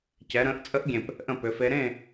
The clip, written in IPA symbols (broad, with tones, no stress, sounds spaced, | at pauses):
c ɛ˩˧ ɾ ə̃ː˩˧ ʔ t͡sʼ ə˧˥ ʔ ɡʲ ẽ˨˩ p | ʔ ə̃˦˨ p ʏ˩˧ f e˧˥ ɾ ẽ˦˨